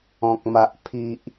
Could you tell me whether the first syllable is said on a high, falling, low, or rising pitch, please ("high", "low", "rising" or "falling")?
low